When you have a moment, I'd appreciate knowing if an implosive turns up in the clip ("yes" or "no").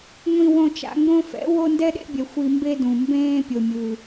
yes